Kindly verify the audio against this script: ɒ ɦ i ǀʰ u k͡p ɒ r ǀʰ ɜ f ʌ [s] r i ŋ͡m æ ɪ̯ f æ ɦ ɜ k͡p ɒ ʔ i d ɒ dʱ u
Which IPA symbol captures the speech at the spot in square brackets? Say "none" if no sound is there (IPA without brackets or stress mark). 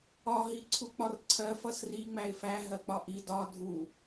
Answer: s